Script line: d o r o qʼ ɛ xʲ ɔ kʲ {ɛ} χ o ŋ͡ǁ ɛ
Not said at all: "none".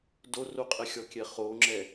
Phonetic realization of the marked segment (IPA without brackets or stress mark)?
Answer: ɛ